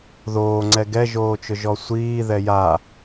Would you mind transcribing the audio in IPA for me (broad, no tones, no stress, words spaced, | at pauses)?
ðoːŋ͡ǀɛ ɡɛʒoːt͡ʃʊʒɔ sʷiːðɛ ja